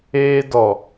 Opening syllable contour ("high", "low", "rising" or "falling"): high